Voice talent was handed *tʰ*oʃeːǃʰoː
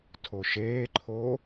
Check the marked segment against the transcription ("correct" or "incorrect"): correct